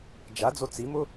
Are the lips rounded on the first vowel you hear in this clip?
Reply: no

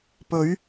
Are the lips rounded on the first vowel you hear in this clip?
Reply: yes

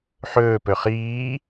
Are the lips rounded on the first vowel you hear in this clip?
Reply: yes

